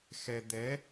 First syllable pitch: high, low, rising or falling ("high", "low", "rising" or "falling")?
low